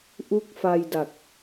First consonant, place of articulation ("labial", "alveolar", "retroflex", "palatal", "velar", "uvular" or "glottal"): glottal